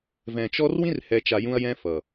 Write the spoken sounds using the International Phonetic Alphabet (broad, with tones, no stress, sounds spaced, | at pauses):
v ɛ̃˨ t͡ʃ ɔ˦ r w ĩ˦ r h ɛ˨ t͡ʃ a˨ j ũ˦ ɐ̯ j ɛ̃˦ f ʌ˨